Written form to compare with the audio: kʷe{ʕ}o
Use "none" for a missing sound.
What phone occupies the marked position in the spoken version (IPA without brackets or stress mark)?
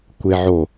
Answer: ʕ